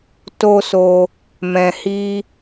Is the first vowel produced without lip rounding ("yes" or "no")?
no